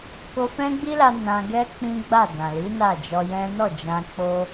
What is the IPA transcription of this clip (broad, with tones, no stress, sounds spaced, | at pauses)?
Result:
k o˧ f ɛ̃˦ ɡ͡b i˦ l a˧ n ã˧ ɡ ɛ˦ k͡p ĩ˦ ɡ͡b a˦˨ d ã˨ l i˨˦ n a˦˨ d͡ʒ ɔ˧ j ɛ̃˦ n ɔ˦˨ d͡ʒ ã˧ k͡p o˧